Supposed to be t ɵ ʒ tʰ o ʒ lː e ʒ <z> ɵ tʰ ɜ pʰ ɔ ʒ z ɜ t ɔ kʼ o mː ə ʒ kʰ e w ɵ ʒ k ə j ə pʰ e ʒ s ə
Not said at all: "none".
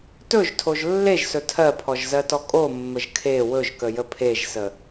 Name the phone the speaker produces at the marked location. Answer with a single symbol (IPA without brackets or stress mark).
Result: s